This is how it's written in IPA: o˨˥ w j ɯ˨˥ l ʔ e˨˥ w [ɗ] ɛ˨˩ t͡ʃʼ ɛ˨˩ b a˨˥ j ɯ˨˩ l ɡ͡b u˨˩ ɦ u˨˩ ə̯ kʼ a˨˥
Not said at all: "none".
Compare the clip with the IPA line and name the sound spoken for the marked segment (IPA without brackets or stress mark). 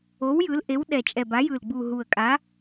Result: ɗ